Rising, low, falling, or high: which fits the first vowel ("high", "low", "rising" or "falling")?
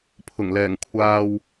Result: low